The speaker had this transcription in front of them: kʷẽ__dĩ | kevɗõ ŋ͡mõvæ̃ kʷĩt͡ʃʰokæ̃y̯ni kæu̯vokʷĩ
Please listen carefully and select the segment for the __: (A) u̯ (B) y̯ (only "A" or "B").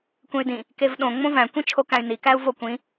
B